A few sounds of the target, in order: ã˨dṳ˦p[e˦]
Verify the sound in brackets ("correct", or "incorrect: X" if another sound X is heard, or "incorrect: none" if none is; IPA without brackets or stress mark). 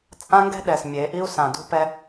incorrect: ɛ˦